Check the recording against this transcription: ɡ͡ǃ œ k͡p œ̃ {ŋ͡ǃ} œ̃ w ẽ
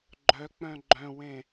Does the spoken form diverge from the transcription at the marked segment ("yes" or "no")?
yes